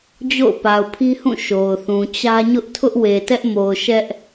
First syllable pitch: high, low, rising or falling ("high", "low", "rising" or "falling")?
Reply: falling